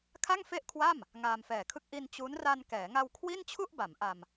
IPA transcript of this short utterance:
kʰa˥˩ŋfe˥˩ʔkʰwa˥˩m | ŋaː˧mfɛː˨˩kʰɯ˥˩k̚ ʔi˧n t͡ɕu˦˥n ra˧nkɛː˩˦ŋa˧w kʰwi˥˩nt͡ɕʰu˥˩ʔ ba˩˦m ʔa˧m

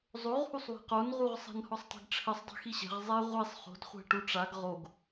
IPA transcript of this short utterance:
zˤoʁhusˤ we̤qonʁuʁ sˤɛ̤nhɔsˤtˤe̤ɡʈ͡ʂʰɘsˤ dˤɛ̤xiɕɛ̤ʁ zˤɛ ʁʷisˤ χo̤dχʷɛ̤ ʈuʈ͡ʂaɡ ʁoɡ

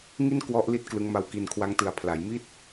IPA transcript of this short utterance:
ŋi˥˩n kwɔ˦˥ʔ li˥˩t̚klɯ˦˥ŋma˧w ki˧nkʰwa˦˥ŋtɯ˨˩a̯ pʰla˩˦jmi˥˩t̚

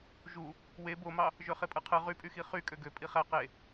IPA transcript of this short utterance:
ʒu | we bomɑ | ʒøχepʼɯqʰɯ ʁypʼyxi χy kʼøɡø pʼiχæ qe

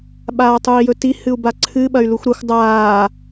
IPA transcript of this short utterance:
ɓaːtˤui̯jɵti hɨu̯baǀʰɨ ɓɐy̯luxʷɾɐxʷ dˤaː

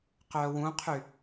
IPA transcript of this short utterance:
qœːwũqʰy

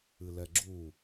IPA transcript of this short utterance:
ɨlɛɡ͡ǁu

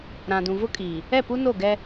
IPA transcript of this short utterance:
ɾã˨ dũ˨vʊ˦kʼi˨ | ɛ˦˨pu˦no˦˨ɡɛ˦

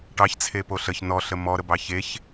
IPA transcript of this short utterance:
ʈɑçt͡sʰepo ɬəç nɔɬə mɔɾəbɑ çeç

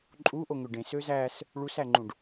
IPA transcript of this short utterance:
ǃʼuʔoŋøɖ ẽsø zæs | ɭusæŋ͡ǃũɖ

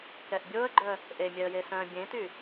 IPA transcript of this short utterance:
kɛʔbʲoə̯ɡ͡ǃœ | ʔemʲɛə̯je sœ̃ bʲẽty

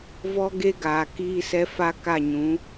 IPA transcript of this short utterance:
vɔ˦ ɡe˦ɡaː˨ kiː˦sɛ˦ fa˦ka˦˨ɲũ˨˦

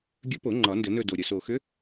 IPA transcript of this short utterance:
ɡʲɵ˧˥po˨˩˦ ŋ͡ǃɒ˨˩˦ ndə˨˩˦nɵ˦˨do˨˩ ɾʲə˨˩so˨˩xʏ˧˥

